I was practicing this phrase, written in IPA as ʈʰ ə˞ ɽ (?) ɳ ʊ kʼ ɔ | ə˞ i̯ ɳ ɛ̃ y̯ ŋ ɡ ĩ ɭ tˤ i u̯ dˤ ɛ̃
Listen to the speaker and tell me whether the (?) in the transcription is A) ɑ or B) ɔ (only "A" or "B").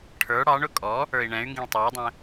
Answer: A